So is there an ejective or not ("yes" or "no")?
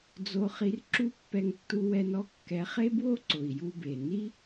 no